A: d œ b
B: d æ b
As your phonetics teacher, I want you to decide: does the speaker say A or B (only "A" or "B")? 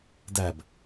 B